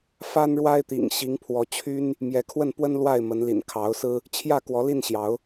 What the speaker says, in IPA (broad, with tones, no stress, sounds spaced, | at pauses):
f a˦ n ɻ w a˦ ɪ̯ t̪ ḭ˨˩ ŋ ɕ i˨˦ ŋ pʰ w ɔ˨˦ t͡ɕʰ y˦ n | m j ɛ˨˦ kʰ w ə˥˨ n p w ə˦ n l w a˥˨ ɪ̯ m ə˨˦ n l ḭ˨˩ n kʰ ɑ˨˦ ʊ̯ s ɹ̩˦ | t͡ɕʰ j ä˥˨ k w ɔ˨˦ l i˥˨ n ɕ j ɑ˨˦ ʊ̯